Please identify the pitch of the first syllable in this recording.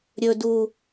high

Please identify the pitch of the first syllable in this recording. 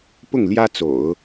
falling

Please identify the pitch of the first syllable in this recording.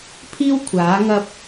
high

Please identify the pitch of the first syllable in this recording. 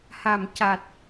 low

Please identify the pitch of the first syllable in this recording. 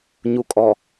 low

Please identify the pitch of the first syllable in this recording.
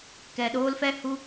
low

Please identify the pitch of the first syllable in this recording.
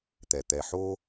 low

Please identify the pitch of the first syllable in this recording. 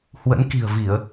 rising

